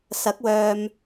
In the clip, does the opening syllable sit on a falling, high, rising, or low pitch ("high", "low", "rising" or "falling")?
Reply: rising